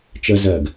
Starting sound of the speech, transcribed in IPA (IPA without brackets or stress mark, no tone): t͡ʃ